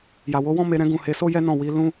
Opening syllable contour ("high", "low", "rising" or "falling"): low